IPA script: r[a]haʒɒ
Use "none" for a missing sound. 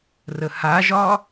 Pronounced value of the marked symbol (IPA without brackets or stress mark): ə